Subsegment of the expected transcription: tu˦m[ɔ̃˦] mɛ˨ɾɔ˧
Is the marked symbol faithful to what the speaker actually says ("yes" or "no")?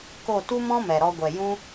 yes